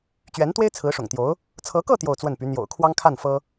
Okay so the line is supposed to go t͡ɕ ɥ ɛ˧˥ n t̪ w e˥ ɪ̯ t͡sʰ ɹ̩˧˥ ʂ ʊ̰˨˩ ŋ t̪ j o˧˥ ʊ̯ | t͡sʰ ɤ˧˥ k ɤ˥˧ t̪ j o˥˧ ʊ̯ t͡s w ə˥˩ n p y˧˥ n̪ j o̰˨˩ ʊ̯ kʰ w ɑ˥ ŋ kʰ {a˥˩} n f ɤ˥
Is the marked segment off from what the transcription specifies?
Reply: no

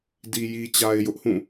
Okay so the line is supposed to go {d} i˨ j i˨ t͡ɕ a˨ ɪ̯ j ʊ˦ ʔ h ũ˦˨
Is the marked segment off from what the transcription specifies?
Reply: no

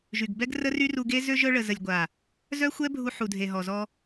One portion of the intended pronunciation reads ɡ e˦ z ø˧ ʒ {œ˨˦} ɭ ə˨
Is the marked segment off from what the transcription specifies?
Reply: yes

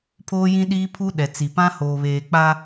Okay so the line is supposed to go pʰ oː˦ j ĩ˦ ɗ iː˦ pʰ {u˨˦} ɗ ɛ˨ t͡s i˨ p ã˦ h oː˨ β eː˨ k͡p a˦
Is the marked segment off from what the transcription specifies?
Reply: yes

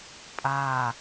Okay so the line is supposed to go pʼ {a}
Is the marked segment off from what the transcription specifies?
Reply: no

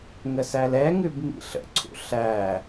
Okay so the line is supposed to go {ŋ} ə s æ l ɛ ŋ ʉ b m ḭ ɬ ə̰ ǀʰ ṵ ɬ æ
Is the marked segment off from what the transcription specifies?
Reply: no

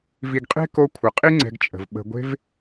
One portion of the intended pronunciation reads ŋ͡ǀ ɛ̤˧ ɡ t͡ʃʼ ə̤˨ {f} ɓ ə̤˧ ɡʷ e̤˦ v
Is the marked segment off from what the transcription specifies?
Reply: yes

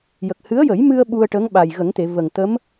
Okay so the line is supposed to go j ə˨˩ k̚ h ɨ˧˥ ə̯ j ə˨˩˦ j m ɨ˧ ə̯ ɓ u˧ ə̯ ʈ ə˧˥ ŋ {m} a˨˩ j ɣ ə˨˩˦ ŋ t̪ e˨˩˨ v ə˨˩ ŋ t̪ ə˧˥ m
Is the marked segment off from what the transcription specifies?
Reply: yes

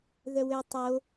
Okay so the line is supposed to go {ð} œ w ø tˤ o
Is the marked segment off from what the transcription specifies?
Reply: no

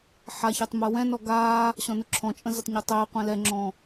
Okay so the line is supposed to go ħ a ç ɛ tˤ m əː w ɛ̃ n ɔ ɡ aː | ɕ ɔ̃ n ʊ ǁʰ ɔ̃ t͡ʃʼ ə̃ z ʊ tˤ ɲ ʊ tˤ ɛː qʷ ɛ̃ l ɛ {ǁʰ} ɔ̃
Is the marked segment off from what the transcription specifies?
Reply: yes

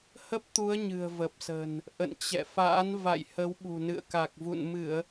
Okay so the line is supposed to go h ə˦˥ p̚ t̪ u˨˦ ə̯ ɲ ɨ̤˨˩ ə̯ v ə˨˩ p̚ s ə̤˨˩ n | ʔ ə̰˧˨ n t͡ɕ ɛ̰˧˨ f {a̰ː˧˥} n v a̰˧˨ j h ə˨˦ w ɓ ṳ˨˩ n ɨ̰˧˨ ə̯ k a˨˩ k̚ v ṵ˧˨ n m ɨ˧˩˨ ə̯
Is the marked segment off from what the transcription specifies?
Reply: no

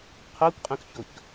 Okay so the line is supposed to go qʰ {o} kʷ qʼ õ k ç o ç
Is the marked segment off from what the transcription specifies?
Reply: no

